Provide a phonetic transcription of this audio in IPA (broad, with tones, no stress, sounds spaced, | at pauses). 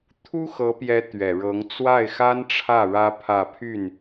t̪ʰ u˥ x ɤ˧˥ p j ɛ˧˥ t̪ ɥ ɛ˨˩ ɻ ɤ˧˥ ŋ t͡s w a˥˩ ɪ̯ x a˥ n ʈ͡ʂʰ ä˥˩ ɻ ä˥ pʰ ä˥˧ pʰ y˥˩ n